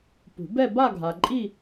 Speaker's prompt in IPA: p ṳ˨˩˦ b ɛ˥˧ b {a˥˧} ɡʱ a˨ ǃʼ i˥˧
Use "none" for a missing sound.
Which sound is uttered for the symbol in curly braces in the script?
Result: a˥˧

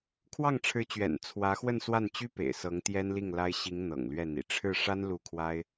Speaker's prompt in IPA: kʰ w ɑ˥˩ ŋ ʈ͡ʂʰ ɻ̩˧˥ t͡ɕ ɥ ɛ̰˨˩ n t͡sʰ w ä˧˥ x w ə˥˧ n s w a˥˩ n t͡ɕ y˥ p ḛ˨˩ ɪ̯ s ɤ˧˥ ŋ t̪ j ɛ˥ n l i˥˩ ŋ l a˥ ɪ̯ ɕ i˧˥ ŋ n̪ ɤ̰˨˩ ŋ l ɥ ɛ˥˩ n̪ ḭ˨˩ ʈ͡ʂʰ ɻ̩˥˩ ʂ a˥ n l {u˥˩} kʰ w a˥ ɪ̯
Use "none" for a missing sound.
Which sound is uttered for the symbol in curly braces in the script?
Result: u˥˩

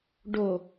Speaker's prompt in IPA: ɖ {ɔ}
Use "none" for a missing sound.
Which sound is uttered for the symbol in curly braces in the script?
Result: o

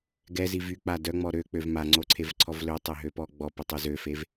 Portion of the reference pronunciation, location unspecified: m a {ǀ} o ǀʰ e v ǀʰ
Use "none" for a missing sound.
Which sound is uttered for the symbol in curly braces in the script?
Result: ŋ͡ǀ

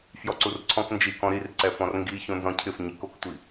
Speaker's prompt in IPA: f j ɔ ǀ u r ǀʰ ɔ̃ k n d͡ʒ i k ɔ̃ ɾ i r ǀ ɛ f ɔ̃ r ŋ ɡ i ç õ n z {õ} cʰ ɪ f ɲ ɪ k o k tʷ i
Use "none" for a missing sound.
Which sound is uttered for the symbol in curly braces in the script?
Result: ɔ̃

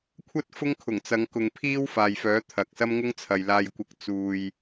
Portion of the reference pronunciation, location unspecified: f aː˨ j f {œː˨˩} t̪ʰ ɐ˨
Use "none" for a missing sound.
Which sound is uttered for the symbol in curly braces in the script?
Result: œː˨˥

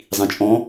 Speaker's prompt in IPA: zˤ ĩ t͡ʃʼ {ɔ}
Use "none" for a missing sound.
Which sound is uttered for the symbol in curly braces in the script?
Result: ɔ̃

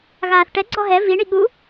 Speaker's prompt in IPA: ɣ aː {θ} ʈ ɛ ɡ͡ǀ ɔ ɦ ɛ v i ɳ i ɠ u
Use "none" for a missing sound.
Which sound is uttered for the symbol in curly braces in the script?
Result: θ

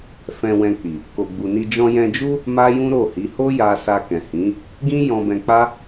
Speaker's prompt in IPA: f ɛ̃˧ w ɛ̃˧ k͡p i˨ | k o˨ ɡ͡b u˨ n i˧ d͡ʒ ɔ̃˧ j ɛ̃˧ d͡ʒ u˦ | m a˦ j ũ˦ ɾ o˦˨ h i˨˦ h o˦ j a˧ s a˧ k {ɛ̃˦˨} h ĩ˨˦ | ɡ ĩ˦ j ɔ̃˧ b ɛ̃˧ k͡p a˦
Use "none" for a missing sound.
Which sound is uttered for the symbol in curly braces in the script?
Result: ɛ̃˨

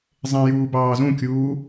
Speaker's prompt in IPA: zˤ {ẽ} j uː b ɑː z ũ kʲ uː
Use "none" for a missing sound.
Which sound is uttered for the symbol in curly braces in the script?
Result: ẽ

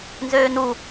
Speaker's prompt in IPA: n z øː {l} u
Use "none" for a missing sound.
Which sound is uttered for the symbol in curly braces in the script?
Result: n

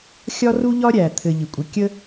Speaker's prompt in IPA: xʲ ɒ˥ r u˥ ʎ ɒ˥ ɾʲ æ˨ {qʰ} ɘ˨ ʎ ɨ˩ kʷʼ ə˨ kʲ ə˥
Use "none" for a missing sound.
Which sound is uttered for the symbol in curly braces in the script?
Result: t̪ʰ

